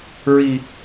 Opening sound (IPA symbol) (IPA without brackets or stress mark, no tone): ɹ